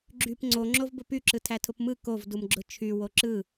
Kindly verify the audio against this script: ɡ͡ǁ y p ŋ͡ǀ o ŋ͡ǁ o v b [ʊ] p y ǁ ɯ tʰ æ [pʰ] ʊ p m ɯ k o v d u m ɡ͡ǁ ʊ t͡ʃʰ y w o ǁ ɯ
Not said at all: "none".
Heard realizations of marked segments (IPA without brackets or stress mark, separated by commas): ʊ, tʰ